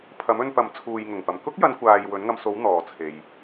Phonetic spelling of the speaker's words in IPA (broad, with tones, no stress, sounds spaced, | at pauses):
pʰ ɐ˨˥ m ɵ˧ n p ɐ˨˥ m t͡sʰ uː˨ j ŋ ʊ˨˩ ŋ p ɐ˨ m k ʊ˥ k̚ j ɐ˨˧ n kʷ aː˨ j w ɵ˨˥ n ŋ ɐ˧ m s o˨˥ w n̪ ɔː˨ t͡sʰ e˨ j